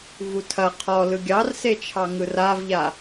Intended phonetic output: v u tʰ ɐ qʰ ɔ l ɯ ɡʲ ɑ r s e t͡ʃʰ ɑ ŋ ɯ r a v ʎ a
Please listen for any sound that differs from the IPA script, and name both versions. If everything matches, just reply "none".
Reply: none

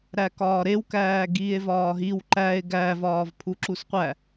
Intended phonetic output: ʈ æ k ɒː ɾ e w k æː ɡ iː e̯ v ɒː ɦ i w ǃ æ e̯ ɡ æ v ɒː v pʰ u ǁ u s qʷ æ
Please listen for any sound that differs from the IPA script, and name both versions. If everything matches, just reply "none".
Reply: ʈ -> ɾ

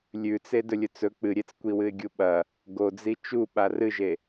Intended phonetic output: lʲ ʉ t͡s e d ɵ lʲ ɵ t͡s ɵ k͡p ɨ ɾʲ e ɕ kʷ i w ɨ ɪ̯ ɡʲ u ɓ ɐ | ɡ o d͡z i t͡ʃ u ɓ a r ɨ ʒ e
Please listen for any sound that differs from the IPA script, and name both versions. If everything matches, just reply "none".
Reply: ɕ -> t͡s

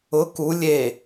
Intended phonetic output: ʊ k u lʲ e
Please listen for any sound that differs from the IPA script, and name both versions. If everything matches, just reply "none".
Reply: none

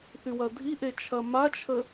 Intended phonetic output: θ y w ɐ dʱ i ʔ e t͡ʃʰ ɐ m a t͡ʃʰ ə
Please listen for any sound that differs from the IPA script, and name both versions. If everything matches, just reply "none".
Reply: none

